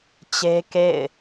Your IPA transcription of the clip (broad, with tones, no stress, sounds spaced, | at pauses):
t͡ɕ e˦ k ḛ˦˨ ɪ̯